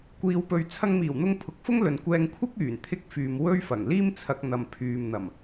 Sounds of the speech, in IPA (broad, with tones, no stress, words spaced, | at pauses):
kʷiː˨˧wpɵ˨ɥ t͡sʰɐ˧ŋmiː˨˩wn̪ʊ˧ŋ pʰʊ˨˥k̚fʊ˥ŋlɵ˨n kʷɛː˧ŋkʷʰɪ˥k̚yː˨˩n t̪ʰɪ˥k̚fyː˨m wɵ˥ɥfɐ˨˩ŋ liː˥mt͡sʰɐ˧k̚ n̪ɐ˨mpʰyː˨mn̪ɐ˨˩m